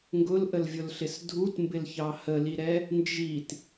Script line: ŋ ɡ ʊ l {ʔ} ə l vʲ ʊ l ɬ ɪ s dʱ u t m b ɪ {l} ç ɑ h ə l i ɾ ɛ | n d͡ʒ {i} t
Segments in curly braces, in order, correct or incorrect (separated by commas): correct, correct, correct